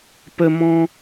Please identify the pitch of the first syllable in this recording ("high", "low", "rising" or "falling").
high